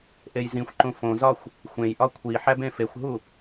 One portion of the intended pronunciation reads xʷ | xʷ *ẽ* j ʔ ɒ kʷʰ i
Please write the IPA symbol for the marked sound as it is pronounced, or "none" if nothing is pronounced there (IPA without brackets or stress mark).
ẽ